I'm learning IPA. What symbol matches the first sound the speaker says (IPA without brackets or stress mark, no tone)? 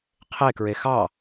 qʰ